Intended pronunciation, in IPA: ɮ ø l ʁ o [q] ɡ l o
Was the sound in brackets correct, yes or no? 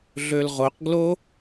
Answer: yes